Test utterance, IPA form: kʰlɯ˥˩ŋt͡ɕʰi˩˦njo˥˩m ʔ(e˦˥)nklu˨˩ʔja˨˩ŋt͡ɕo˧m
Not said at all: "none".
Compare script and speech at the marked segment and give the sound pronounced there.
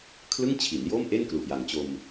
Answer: e˥˩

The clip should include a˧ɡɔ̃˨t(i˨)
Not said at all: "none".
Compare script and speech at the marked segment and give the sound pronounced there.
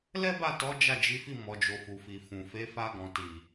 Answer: i˨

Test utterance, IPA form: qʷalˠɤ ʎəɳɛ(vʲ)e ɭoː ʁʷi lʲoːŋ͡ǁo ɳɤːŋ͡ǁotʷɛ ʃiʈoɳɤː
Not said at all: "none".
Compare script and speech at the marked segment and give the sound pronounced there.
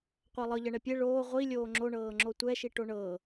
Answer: pʲ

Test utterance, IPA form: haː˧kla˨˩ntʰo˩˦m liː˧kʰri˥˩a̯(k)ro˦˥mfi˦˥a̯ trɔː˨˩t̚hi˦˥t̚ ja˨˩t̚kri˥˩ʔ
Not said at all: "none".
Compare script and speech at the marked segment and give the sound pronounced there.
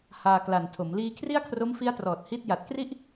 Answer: kʰ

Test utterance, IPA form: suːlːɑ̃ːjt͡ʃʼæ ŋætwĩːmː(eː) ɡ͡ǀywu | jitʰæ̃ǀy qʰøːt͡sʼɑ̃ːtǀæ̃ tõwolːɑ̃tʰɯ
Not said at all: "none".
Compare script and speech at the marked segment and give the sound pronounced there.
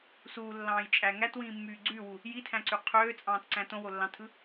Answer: yː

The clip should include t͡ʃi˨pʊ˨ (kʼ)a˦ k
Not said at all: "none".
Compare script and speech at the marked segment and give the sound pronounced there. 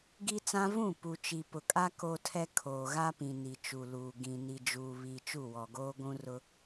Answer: kʼ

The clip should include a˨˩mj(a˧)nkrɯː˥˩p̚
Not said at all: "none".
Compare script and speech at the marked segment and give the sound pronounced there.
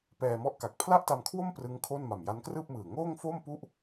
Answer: a˦˥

